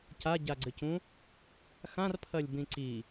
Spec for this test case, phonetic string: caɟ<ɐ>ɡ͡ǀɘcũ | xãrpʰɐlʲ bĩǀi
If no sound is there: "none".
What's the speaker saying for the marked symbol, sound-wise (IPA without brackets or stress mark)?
a